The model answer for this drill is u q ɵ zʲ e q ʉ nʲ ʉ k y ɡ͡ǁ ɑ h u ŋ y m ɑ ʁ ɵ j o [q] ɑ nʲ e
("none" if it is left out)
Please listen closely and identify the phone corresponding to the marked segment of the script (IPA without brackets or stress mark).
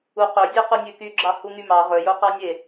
q